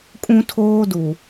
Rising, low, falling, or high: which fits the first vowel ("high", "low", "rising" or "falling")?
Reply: high